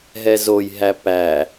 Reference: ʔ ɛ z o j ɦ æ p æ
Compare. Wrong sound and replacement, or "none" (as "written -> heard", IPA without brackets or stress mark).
ʔ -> ɦ